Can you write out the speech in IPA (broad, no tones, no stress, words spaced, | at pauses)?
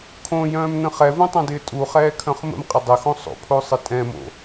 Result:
kʰõjœ̃ːmnə̃ χɛvũtˤœ̃dɪː tʼuχɛːkʰœ̃χ mə̰mqʼɪ dˤɪxõ sˤo̰pʰosˤɪ tʼɛ̃mo̰